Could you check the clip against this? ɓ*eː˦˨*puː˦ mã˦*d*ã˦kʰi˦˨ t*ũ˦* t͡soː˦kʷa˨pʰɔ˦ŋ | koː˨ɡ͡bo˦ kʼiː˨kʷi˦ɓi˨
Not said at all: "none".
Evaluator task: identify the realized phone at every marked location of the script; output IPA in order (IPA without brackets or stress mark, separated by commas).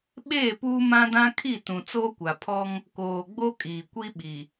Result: eː˦˨, d, ũ˨